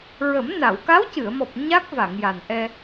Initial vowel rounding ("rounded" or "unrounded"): unrounded